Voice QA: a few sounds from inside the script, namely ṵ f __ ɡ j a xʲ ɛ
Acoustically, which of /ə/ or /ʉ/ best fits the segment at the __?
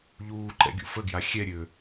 ə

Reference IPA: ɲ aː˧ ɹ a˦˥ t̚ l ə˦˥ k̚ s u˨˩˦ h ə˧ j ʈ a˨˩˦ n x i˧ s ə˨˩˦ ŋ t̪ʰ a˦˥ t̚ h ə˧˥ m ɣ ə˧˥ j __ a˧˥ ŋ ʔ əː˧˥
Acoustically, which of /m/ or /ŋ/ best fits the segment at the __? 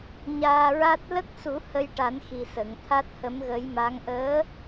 m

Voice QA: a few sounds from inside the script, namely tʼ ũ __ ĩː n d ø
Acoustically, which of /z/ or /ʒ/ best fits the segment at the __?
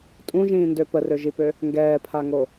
ʒ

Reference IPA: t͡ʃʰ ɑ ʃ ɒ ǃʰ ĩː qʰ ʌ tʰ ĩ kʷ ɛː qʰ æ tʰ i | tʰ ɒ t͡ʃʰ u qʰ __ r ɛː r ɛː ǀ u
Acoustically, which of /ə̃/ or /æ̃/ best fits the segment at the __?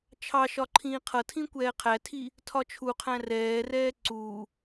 æ̃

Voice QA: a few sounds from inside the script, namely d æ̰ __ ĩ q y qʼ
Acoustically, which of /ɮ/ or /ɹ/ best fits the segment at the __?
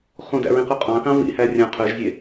ɹ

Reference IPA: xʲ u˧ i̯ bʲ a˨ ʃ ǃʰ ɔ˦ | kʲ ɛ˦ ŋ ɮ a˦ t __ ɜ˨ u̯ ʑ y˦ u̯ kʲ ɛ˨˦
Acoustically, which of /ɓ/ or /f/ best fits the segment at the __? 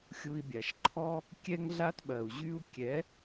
ɓ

